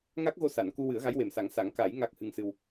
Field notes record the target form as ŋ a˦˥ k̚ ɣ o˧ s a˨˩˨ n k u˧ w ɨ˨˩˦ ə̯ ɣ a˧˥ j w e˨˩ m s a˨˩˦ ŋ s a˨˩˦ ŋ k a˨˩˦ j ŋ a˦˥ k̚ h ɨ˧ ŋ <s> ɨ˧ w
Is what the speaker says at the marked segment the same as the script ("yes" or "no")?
yes